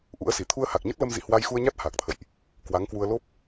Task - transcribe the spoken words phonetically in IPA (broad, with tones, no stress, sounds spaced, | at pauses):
ʔ ṵ˧˥ ə̯ s i˧˩ t̪ʰ u˧ ə̯ h a˨˩ k̚ ɲ ə˦˥ t̚ l ə˧ m z ḭ˧˨ h w a˧ j x u˧ ə̯ ɲ a˦˥ t̚ h aː˨˩ k̚ t̪ʰ ə̰˧˨ j ʔ | k w a˨˦ ŋ k w u˧ ə̯ l o˦˥ p̚